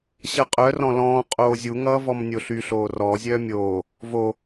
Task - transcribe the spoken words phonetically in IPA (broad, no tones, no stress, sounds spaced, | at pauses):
ɕ ʌ qʼ œ r ɔ̃ l ɔ̃ː qʼ oː zʲ u ŋ ʌː v ɔ m nʲ o ɬ y ɬ oː r ɔ zʲ œː mʲ oː | v o